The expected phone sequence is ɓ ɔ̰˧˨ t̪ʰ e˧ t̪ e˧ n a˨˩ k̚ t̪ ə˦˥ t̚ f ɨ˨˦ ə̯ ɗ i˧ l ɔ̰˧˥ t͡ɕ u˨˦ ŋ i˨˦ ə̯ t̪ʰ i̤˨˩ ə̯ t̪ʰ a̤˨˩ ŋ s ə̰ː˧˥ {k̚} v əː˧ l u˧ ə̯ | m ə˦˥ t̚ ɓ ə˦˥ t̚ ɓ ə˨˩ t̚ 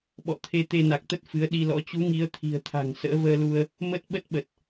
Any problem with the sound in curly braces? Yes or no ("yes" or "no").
yes